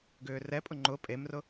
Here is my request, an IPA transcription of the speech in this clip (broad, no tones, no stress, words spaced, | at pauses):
ɡʏːrɛpʼʊ ŋ͡ǃʊ pʼemrʊ